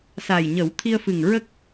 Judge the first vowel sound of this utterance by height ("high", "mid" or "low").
low